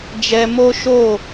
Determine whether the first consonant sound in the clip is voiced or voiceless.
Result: voiced